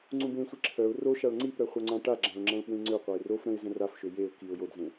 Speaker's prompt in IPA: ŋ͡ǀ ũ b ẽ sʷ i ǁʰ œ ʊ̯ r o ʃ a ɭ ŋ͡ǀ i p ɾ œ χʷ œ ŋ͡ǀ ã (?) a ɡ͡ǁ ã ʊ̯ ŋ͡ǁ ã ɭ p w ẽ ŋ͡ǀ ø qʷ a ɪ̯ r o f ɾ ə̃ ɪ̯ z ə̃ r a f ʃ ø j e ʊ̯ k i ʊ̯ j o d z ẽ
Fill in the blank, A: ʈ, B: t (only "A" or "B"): A